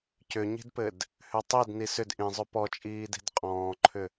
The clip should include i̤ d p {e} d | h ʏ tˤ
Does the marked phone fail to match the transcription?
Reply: yes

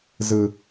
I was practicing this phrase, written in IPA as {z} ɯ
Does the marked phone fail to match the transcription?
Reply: no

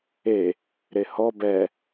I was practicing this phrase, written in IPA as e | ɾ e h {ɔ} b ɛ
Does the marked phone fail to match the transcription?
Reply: no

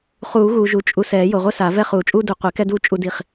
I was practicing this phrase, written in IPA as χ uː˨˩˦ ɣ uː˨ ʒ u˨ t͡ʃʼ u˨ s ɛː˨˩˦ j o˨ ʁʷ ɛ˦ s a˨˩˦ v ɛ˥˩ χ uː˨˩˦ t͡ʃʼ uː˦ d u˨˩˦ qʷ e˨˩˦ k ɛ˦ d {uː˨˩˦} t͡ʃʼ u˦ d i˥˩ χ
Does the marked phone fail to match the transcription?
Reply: yes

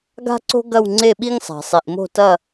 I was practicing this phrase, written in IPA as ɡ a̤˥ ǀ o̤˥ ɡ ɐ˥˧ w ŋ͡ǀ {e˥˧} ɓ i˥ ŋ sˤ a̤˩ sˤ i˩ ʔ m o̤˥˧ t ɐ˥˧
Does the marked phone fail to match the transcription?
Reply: no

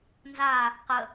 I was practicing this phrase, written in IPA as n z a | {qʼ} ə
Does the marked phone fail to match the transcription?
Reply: yes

